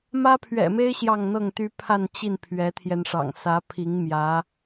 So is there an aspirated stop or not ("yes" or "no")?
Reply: yes